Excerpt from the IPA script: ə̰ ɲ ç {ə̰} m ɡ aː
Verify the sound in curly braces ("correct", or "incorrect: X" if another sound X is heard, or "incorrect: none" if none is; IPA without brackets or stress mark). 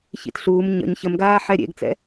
incorrect: ə